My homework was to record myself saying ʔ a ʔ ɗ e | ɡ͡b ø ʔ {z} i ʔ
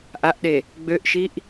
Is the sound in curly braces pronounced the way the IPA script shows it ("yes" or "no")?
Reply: no